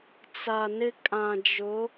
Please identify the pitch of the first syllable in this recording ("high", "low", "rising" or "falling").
low